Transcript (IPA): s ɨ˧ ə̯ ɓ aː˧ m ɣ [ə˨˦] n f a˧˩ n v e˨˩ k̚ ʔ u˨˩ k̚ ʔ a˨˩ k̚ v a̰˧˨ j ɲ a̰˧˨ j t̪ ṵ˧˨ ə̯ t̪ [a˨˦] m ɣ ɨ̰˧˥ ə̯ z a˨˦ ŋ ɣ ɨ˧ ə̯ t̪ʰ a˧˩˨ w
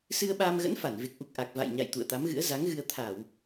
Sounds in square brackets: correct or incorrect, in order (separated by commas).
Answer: incorrect, correct